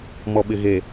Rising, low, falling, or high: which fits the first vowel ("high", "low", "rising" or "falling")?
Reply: low